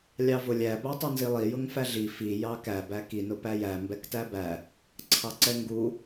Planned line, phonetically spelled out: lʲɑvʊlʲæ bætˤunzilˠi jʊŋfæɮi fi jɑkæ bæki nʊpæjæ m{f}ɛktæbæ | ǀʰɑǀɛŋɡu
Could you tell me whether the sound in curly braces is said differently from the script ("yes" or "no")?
yes